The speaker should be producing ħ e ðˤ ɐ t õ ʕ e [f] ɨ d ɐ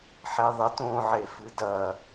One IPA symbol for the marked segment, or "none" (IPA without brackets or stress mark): f